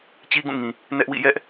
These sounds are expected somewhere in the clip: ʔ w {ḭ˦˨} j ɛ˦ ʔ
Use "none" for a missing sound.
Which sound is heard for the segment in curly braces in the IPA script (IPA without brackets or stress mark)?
ḭ˦˨